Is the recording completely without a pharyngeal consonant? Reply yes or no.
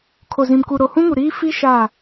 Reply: yes